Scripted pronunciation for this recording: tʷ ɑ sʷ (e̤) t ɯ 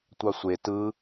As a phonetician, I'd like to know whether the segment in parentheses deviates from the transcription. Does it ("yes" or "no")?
yes